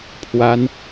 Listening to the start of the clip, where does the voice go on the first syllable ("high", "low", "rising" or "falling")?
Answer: high